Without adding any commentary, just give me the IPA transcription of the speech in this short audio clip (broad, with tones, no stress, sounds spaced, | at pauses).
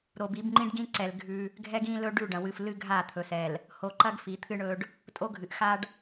ɾ o˨ b i˨˦ b ŋ͡ǃ ĩ˦ ɖ ɡ ĩ˦ ǀ ɛ˨ l ɡʱ ʉ˦ | ɡʱ ɛ˦ ɡ ĩ˦ l ɵ˦ ɖ ʉ˦˨ ɖ ɐ̃˨ w ɨ˨ f l ɨ˦ ɡʱ a˦˨ t̪ʰ ɵ˨ s ɛ˨ l | h o˨ ǃ ɐ˦ ɡ f i˨ t̪ʰ ɨ˦ ɳ ɵ˦ ɖ | tʼ o˦ ɡʱ ɨ˨ ʔ x a˦ ɖ